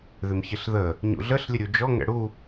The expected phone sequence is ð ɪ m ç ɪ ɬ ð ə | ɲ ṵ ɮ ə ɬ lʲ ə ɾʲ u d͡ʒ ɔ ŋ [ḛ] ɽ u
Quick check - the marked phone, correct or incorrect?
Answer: incorrect: ɛ̰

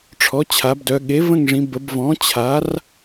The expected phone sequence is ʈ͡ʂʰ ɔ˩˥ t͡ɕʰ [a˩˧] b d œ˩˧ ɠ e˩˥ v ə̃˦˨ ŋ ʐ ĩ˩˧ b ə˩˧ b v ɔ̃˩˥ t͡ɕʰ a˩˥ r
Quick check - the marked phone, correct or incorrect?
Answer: correct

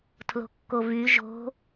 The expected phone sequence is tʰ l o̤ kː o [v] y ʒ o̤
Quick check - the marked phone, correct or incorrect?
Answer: correct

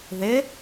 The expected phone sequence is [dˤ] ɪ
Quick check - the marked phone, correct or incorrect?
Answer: incorrect: ð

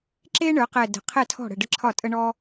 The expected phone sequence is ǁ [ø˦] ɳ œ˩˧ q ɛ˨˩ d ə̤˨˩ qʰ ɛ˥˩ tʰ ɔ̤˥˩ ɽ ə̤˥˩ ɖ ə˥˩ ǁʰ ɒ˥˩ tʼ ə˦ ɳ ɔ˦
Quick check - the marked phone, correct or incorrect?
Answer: incorrect: e˦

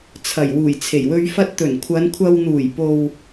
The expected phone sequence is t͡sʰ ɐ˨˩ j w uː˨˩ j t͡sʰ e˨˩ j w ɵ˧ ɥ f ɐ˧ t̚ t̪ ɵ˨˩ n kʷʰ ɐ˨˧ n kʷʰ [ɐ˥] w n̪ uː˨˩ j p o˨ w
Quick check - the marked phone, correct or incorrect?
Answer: incorrect: ɐ˧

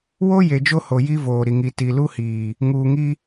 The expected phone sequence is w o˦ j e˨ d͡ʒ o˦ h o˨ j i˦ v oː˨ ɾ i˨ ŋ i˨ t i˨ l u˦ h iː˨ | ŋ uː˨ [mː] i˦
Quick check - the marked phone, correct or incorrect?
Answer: incorrect: ŋ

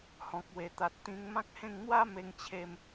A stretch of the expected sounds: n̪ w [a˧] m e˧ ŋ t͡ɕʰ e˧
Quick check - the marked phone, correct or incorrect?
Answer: incorrect: a˦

